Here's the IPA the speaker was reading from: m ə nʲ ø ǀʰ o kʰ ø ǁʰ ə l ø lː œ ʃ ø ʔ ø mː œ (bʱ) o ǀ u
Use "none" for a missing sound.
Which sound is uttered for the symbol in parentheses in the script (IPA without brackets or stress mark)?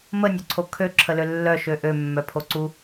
pʰ